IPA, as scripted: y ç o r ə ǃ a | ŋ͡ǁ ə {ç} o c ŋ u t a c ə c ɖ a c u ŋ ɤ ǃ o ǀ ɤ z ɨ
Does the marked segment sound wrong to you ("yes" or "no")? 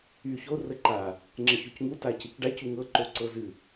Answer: no